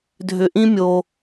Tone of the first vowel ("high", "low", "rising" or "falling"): low